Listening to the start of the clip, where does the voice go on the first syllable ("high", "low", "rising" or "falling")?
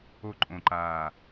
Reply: falling